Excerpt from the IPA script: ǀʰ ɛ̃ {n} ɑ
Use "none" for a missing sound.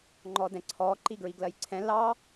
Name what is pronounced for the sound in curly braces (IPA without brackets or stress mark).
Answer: l